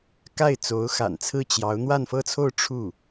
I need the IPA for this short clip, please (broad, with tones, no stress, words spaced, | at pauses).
ka˥˩ɪ̯t͡so˧˥ʊ̯xa̰˨˩nt͡sʰɹ̩˥˩ t͡ɕjɑ˧˥ʊ̯ n̪wa˥˧nfɤ˥˧t͡sʰo˥˧ʊ̯ ʈ͡ʂʰu˥˩